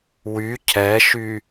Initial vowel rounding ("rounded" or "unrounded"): rounded